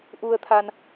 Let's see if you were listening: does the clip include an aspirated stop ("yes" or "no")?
yes